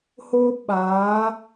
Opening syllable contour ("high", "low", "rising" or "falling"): high